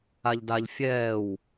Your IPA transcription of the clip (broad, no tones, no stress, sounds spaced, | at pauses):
a ʎ d a ʎ fʲ ɛː w